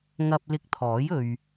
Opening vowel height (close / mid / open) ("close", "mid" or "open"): open